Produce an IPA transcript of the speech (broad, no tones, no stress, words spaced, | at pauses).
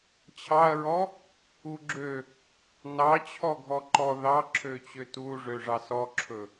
t͡ɕʰɑɐ̯ɹɔ | uɡ͡ǁø | nɑ t͡ɕʰɔɡʱɔǃɔ ðɑ ǁʰøt͡ɕøtuʐø ʐɑsɔǁʰɵ